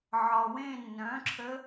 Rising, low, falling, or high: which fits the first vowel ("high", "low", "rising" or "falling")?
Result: low